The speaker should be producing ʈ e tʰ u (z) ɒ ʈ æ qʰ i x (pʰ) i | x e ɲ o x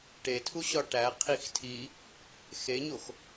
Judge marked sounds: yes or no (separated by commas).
no, no